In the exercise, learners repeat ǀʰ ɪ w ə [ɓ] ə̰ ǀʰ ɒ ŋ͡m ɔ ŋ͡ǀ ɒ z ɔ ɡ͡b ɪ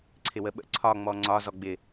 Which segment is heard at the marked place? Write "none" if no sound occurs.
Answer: ɓ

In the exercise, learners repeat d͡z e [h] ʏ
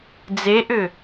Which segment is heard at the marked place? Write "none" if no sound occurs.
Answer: ʔ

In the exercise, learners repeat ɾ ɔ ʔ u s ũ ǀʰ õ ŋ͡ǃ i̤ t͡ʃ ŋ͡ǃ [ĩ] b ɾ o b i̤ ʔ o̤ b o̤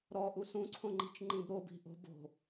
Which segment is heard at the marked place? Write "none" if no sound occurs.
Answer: ĩ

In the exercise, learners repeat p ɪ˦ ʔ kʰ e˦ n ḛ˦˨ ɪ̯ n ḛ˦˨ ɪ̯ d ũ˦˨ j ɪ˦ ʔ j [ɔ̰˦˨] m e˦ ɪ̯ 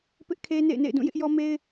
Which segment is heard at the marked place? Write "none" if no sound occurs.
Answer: ɔ˦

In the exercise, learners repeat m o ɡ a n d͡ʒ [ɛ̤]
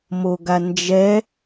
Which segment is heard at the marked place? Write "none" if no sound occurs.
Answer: ɛ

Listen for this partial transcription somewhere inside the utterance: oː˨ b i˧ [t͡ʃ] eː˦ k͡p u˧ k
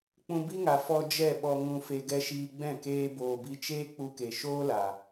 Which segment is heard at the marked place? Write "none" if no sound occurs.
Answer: t͡ʃ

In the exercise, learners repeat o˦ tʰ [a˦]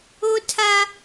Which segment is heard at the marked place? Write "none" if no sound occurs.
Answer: a˦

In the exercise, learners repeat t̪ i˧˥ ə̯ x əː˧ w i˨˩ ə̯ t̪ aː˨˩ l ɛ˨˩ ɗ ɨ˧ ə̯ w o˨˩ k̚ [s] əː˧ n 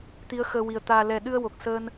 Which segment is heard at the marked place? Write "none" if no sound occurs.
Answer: s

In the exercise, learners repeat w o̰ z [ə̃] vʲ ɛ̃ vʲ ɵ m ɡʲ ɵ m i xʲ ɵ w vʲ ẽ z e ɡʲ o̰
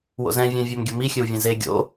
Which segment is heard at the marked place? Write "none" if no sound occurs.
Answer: ɛ̃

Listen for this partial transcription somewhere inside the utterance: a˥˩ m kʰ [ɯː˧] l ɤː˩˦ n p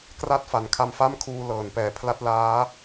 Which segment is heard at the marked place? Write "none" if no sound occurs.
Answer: uː˧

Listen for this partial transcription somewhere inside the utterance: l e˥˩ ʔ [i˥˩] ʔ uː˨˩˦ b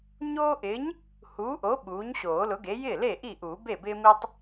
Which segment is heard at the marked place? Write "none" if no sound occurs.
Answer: i˥˩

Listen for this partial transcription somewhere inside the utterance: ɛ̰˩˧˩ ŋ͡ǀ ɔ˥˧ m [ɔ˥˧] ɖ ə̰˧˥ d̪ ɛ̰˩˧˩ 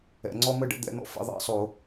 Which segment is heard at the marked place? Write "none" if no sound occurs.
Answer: ə˥˧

